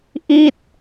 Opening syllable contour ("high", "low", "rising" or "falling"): falling